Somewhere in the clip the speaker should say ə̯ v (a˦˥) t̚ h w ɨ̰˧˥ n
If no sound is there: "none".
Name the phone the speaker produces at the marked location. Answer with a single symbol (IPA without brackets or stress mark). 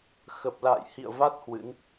a˦˥